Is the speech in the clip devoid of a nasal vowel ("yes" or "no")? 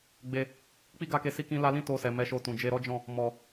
no